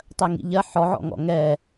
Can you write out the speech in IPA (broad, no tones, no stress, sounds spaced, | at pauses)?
tˤ ɜ ŋ ḭ ʎ ɜ ħ ɔ ʕ ɔ̰ ŋ ɔ̰ ŋ ɛ